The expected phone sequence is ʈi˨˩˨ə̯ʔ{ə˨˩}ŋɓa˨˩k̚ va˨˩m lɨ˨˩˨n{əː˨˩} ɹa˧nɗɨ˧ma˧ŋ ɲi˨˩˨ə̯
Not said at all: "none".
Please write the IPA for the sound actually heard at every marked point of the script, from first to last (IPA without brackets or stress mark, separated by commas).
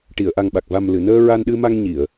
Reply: a˨˩, əː˧